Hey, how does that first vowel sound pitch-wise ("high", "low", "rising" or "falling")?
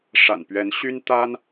low